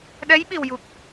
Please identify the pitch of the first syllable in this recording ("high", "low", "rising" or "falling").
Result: rising